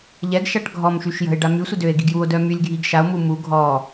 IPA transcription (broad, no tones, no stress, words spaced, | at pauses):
ʎɛɡʃaʈ ɡʱɔmʃyʃ jə̤e̯ ɖamysʷə døe̯ɡi̤ɡ juo̯dœ mylʲɡʱiɡ ʃao̯mu mu ɡʱɔ